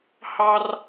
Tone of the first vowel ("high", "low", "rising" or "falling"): high